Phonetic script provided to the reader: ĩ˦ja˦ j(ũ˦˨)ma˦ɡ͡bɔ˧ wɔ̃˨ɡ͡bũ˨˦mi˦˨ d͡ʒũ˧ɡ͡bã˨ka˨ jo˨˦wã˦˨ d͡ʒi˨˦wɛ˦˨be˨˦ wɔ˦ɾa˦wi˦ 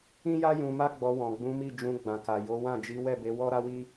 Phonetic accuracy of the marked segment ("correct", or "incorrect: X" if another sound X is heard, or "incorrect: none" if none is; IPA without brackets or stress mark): incorrect: ũ˧